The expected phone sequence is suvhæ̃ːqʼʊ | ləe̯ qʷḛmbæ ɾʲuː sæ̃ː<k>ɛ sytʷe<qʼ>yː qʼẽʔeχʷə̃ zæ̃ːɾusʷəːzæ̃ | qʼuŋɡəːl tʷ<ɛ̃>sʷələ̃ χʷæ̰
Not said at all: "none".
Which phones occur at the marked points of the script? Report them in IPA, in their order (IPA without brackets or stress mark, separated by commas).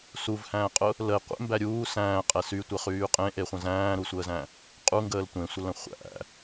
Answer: qʼ, χ, ẽ